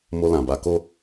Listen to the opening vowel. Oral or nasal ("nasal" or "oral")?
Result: oral